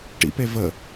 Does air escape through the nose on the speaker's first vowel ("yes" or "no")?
no